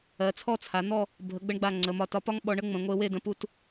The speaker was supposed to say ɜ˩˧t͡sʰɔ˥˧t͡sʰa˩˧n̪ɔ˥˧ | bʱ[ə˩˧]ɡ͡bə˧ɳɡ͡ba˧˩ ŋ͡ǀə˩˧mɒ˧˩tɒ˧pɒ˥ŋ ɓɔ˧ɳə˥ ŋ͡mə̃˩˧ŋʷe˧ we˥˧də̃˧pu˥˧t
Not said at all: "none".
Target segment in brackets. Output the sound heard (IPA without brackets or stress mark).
ə˩˧